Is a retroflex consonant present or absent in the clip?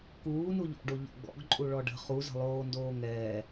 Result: present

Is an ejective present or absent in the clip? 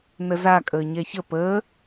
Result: present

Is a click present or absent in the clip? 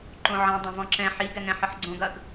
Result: present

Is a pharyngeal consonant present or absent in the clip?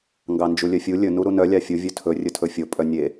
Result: absent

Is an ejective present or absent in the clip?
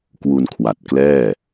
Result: absent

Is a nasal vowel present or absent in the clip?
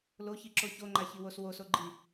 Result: absent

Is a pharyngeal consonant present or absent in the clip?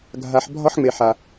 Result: present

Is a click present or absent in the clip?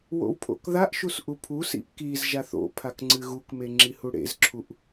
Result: present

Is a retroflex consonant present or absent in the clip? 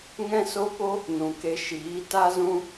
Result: absent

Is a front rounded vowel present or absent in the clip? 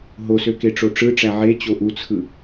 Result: present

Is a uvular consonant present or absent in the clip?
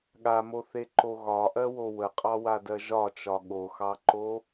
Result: present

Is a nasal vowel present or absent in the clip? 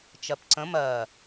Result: present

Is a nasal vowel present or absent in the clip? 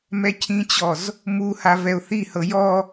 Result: present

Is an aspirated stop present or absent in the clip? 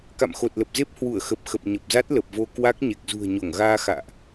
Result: absent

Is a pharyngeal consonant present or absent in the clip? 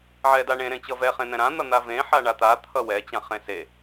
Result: present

